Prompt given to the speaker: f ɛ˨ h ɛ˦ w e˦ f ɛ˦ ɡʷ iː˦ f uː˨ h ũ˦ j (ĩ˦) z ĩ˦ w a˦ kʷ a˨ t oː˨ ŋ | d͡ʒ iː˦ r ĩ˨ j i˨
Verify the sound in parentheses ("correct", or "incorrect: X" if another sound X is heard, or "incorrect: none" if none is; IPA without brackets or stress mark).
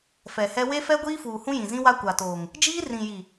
incorrect: ĩ˨